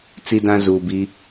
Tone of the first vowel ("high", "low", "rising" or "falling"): high